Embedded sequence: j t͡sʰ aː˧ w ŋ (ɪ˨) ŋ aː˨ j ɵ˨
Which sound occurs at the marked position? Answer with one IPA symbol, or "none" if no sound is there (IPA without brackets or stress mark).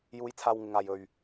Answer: ɪ˨